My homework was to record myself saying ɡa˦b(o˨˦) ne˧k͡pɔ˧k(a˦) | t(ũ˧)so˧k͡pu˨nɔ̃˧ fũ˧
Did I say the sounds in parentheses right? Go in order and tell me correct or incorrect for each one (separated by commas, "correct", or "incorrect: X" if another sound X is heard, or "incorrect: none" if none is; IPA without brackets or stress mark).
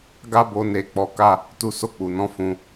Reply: incorrect: o˧, correct, incorrect: u˧